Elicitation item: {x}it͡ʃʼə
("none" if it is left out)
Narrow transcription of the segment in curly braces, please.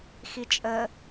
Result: x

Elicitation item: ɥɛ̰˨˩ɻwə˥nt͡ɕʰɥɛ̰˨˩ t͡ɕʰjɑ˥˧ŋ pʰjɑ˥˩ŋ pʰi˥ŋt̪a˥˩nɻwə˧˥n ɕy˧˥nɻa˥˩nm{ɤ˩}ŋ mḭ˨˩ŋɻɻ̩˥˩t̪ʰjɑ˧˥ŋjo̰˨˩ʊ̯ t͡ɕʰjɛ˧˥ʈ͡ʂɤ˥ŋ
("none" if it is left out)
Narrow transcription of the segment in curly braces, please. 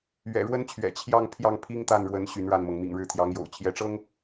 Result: ɤ˩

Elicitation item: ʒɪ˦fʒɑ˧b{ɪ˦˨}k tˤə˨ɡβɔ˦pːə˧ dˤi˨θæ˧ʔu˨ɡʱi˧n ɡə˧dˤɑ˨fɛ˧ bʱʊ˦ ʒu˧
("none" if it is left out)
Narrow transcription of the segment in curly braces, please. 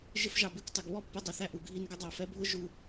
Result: ɪ˦˨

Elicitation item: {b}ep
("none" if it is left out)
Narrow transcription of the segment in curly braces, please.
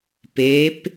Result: p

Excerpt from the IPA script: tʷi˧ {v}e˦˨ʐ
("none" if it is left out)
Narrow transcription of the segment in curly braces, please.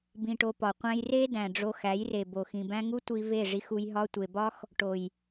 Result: v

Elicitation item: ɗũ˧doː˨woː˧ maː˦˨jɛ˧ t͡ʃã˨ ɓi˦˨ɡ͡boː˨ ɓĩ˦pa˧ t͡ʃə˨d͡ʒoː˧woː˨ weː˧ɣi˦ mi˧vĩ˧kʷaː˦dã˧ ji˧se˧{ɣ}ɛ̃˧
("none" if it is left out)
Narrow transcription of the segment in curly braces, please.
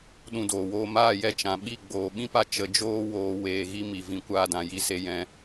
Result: j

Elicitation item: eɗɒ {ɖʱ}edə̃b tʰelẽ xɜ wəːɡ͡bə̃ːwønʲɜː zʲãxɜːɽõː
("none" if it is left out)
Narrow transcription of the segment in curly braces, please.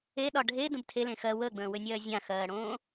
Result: ɖʱ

